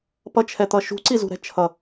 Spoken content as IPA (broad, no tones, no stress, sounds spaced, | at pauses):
p ʌ t͡ʃʰ ɛ t̪ ʌ ʃ ṳ ǀ i z ṳ ɾ ɛ̤ t͡ʃʰ ʌ